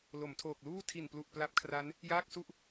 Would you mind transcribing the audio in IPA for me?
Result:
l o˩˦ m tʰ oː˨˩ k̚ l uː˥˩ tʰ i˨˩ n p l u˨˩ ʔ p l a˦˥ p̚ kʰ r a˦˥ n | j aː˥˩ k̚ s u˥˩ ʔ

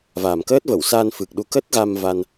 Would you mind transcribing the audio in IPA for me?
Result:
v a˨˩ m k əː˦˥ t̚ v ə˧˩ w s aː˧ n f ɨ˨˩ k̚ ɗ u˨˦ k ə˦˥ t̚ ɣ a˧ m v a˧ n

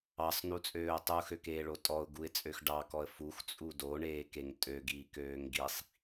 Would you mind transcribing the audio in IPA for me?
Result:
ɑ sˤ n u t͡sʼ øː ʊ̯ tˤ u x ø k eː ɭ o tʼ ɔ ʊ̯ ɡ u ɪ̯ t͡sʼ ø x ɖ ɑ k ɔ ə̯ f u x t͡sʼ u d o ɳ eː k e ŋ tʼ ø ɡ i k øː ŋ ɡ i sˤ

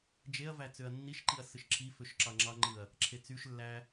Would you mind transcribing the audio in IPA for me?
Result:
d͡ʒ e ɐ̯ v æ t͡s ø ɐ̯ nː i ʃ ǃ i ɐ̯ s ɯ ʃ ǁʰ i f ø ʃ ǁ ɑ ŋ͡ǁ ɑ ŋ͡ǃ ɯ ɐ̯ | ǁʰ e t͡s y ʃ lː æ

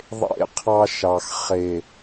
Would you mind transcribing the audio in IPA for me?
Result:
ðˤ ḛ˦˨ qʰ ɑ˦ ʃ ɑ˨ x χ e˨

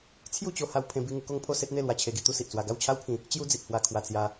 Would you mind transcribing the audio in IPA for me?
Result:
t͡sʰ j u˥˧ t͡ɕ o˧ h a˧ w pʰ ẽ˧ b i˧ ŋ u˧ k o˥˧ ŋ pʰ o˥˧ s e˦ t̚ n̪ e˥˧ l w a˧ t͡ɕʰ e˧ ɡ i˧ t̪ u˦ s i˨ ʔ t͡s w a˧ ɡ a˥˧ w t͡ɕʰ a˦ w pʰ ĩ˧ | t͡ɕ j u˦ d͡z i˨ t̚ h w a˧ kʰ w a˧ t͡s j a˧

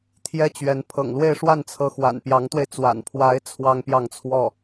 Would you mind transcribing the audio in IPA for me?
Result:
t̪ʰ j ɛ˥ t͡ɕ ɥ ɛ˧˥ n pʰ ɤ̰˨˩ ŋ l w e˥˧ ɪ̯ ʂ w a˥˩ n t͡sʰ ɤ˧˥ x w a̰˨˩ n p j ɑ˧˥ ŋ t̪ w e˧ ɪ̯ t͡s w a̰˨˩ n pʰ w a˧˥ ɪ̯ t͡sʰ w ɑ˥ ŋ p j ɑ˥˧ ŋ t͡sʰ w ɔ˥˩

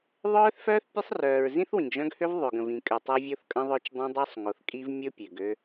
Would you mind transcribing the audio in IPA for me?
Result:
ðˤ œː˦ θ f œː˦ θ pʲ ə˦ sˤ r œː˨ ɹ z ĩ˦ θ w ĩ˨ ɡ ʒ œ̃˦ ɡ h ø˦ v ðˤ ø˨ ɡ ə̃˨ v ĩ˨ kʼ ø˨ tˤ œ˦ vʲ o˦ θ kʼ ə̃˦ ðˤ œ˦ t͡ʃ dˤ õ˦ dˤ œ˦ sˤ ŋ o˨ θ kʼ i˦ v mʲ o˦ pʲ ø˨ ɡ ø˦

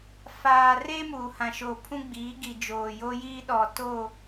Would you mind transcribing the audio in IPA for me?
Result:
f aː˨ r e˦ m uː˨ h ã˨ ʃ o˨ pʰ ũ˦ ɡ͡b iː˨˦ ɡ i˨ d͡ʒ oː˨ j o˦ j iː˦ ɗ ɔ˨ t o˦˨

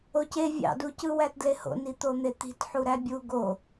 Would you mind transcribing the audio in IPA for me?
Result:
o c e vʲ ɑ̰ d u c ɯ w æ t d l e h o̰ n i t̪ o n̪ e t̪ i̤ t ħ u ɾ æ bʲ u ɡ o

